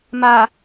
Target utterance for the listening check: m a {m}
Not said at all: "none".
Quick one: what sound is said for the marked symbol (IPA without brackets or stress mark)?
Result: none